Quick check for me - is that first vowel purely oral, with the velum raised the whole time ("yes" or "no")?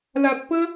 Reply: yes